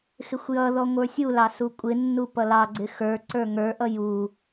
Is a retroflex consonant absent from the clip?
yes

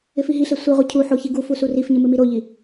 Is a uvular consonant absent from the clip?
no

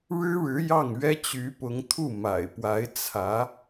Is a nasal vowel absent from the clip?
yes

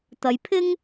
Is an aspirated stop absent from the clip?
no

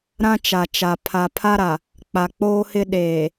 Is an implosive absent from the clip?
no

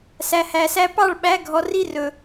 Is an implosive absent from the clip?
no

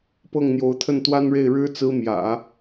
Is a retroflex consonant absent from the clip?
no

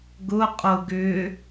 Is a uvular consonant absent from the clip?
no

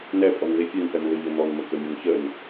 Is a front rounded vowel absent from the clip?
no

